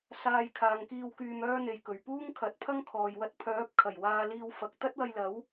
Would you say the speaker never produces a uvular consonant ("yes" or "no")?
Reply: yes